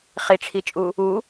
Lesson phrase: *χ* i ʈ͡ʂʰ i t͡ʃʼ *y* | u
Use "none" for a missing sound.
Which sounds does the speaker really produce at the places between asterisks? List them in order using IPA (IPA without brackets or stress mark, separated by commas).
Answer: χ, u